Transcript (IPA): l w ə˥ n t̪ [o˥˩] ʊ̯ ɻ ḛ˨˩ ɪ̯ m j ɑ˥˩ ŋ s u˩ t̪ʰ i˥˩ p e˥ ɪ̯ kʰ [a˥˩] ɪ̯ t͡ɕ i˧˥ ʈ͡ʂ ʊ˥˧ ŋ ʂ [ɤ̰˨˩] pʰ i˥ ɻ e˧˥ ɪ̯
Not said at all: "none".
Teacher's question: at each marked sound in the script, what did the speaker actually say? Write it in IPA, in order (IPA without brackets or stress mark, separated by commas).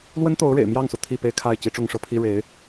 o˧˥, a˥˩, ɤ˥˩